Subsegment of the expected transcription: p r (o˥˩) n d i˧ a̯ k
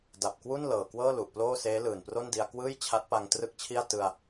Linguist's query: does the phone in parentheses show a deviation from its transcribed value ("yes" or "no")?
no